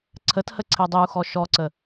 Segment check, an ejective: absent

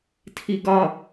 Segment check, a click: absent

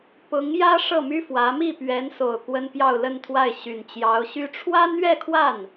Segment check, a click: absent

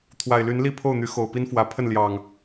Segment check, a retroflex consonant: absent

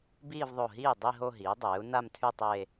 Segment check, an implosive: absent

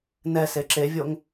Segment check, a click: present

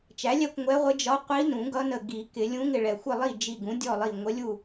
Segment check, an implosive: absent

